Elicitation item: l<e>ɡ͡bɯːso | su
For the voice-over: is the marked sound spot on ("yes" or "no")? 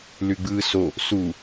no